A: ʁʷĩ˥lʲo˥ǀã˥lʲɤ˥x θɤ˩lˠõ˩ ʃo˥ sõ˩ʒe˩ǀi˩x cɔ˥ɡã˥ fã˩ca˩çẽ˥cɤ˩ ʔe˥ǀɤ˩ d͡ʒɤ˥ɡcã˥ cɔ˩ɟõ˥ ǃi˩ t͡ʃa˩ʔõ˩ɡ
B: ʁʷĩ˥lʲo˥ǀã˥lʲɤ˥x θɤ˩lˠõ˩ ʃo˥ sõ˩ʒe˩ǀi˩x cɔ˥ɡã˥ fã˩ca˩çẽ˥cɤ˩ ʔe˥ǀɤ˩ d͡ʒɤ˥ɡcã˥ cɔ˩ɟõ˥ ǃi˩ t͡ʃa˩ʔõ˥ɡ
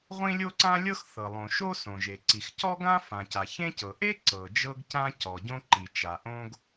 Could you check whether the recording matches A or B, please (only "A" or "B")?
B